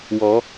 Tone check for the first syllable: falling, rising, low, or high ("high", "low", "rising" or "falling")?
rising